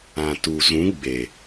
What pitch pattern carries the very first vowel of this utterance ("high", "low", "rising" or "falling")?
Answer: low